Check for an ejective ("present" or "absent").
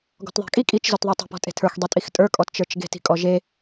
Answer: present